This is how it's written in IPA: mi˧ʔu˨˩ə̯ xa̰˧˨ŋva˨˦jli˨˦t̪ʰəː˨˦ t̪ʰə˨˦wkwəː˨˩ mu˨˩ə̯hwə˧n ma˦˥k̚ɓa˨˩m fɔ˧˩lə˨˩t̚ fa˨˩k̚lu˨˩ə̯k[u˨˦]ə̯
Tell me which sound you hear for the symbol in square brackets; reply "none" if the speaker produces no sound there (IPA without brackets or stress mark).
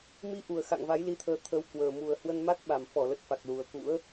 ṵ˧˥